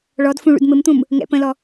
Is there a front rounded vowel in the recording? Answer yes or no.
no